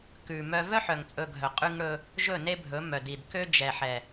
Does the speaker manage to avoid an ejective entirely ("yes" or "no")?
no